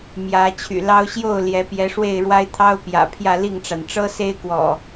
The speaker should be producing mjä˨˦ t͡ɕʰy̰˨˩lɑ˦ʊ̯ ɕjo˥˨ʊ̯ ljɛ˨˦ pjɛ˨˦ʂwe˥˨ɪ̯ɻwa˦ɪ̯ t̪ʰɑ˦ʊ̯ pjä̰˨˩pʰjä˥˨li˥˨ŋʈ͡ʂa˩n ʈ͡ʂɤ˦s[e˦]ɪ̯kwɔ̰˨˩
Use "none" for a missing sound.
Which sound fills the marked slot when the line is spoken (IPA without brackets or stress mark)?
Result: e˦